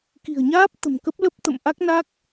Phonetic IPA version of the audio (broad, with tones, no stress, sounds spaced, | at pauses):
k i̤˨˩ ə̯ ɲ aː˦˥ p̚ t̪ ə̤˨˩ m k ə˦˥ p̚ l ə˦˥ p̚ t̪ ə̰˧˨ m ʔ a˦˥ k̚ n a˦˥ k̚